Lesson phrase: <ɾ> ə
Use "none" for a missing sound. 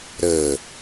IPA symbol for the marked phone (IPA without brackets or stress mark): ɾ